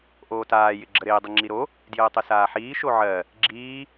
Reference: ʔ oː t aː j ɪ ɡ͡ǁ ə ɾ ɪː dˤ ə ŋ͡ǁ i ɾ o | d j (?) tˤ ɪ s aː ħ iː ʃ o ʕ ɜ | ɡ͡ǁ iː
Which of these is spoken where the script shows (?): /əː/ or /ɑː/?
əː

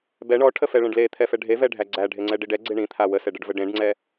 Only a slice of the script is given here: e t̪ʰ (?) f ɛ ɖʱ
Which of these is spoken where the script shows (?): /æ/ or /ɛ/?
ɛ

